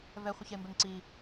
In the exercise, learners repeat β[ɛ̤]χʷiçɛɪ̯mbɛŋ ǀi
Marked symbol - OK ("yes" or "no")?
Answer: no